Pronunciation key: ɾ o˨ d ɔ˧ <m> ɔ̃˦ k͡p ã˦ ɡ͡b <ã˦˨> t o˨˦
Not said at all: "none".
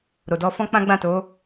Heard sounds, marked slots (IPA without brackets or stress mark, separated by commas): f, ã˦˨